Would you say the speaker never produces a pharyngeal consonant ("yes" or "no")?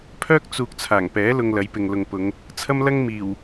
yes